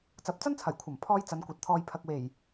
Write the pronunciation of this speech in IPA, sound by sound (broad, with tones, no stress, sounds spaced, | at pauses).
t͡s ɐ˨˥ p̚ t͡s ɐ˥ n t͡sʰ ɐ˨˩ j kʷʰ ɐ˨˩ m pʰ ɔː˥ j t͡s ɐ˨˧ n kʷ ɐ˨ t̚ t̪ʰ ɔː˧ j pʰ ɐ˨ k̚ w e˨˩ j